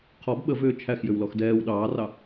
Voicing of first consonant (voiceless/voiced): voiceless